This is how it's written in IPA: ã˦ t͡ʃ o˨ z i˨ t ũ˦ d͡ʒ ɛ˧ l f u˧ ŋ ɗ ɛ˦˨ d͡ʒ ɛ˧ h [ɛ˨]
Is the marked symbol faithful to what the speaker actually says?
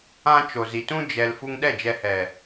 yes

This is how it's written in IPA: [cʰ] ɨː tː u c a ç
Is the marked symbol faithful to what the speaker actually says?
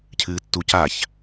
yes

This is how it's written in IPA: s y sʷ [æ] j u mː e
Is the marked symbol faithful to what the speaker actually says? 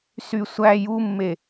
yes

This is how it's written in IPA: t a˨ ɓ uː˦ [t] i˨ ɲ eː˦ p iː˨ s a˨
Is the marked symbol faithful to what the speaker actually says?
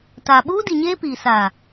no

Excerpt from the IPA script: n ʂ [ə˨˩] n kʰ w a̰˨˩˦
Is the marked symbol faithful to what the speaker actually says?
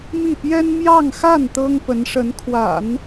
no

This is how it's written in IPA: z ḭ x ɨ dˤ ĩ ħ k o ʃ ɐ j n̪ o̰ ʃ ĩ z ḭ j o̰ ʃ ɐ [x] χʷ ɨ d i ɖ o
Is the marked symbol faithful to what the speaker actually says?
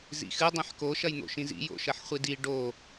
no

